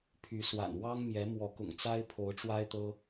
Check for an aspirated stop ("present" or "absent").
present